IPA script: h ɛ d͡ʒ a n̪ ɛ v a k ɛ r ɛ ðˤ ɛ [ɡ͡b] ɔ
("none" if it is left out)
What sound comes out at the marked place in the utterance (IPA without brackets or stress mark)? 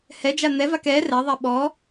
ɓ